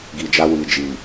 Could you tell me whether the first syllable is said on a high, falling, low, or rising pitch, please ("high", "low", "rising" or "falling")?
low